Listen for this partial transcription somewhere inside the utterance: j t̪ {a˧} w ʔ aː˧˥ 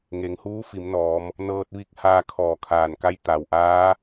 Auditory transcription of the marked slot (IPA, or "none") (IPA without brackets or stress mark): a˩